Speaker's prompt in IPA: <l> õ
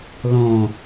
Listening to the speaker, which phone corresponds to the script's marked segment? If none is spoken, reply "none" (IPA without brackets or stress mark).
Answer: l